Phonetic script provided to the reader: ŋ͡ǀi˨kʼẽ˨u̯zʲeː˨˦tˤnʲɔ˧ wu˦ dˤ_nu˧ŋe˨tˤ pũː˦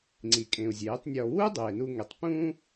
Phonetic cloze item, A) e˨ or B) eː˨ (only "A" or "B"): B